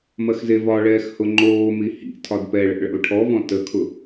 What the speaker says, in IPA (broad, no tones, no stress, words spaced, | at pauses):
mɐxzevɒɭɛːx hʊŋ͡ǃoːmi hḭ tʰɒdpɛɭɛ̰ ɭɛ̰lˠʈʰɔvɔ̃ təkʰʊ